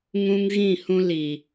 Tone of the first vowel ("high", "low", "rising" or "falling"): high